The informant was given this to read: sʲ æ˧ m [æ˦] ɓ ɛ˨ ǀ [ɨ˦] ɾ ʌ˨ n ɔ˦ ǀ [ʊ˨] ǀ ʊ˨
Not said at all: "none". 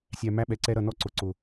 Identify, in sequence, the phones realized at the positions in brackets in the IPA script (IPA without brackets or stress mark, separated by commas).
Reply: æ˦, ɛ˦, ʊ˨